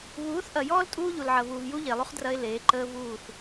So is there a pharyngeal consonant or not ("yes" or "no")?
yes